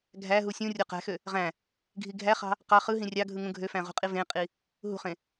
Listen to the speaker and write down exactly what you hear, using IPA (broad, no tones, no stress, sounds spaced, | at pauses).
ɡʱ æ ɦ u sʲ ũ rʲ o q æ̤ x ø | ʁ æ̃ | ɡʱ i ɡʱ æ χ ɑ̤ | q ɑ χ ɯ ɦ ĩ rʲ ɑ ɡʱ ɯ ŋ ũ ɡʱ ø f æ̃ ʁ ṳ qʼ i v ẽ qʼ i | ɦ ṳ χ ẽ